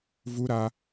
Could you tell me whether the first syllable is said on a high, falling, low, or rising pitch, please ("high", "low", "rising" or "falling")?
high